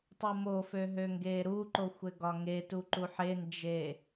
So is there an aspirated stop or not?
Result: no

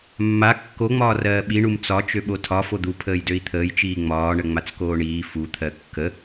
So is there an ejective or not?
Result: no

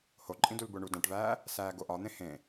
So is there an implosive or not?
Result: no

